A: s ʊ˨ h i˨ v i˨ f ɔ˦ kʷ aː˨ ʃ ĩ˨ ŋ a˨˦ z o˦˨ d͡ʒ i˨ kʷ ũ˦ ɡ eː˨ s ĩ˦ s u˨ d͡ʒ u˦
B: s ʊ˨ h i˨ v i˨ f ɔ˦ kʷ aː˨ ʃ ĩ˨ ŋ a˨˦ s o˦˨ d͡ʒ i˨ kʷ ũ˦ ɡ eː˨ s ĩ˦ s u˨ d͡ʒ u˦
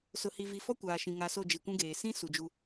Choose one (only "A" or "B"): B